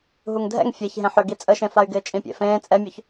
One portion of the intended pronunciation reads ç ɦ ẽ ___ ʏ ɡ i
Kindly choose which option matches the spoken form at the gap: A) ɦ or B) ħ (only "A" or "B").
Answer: B